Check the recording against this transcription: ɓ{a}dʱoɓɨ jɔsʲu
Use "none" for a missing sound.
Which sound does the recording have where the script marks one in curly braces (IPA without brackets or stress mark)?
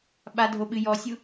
a